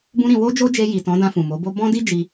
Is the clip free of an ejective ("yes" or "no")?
yes